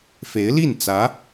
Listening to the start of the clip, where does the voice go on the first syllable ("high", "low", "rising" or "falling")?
rising